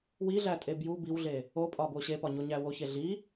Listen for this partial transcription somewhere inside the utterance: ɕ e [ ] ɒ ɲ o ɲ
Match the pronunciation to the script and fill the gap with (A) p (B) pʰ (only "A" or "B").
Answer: A